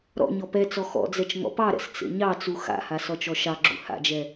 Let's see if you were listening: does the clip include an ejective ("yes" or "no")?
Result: no